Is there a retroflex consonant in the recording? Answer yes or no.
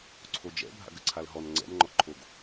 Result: no